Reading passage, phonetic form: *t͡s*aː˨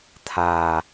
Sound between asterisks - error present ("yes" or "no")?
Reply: yes